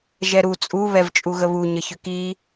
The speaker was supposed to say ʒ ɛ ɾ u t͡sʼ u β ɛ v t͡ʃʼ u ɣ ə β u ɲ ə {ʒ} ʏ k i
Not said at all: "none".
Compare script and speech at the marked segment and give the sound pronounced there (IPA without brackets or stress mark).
ç